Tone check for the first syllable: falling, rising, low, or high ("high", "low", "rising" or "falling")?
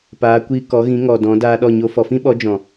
rising